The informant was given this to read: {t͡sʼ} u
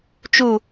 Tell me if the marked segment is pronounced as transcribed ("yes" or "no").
no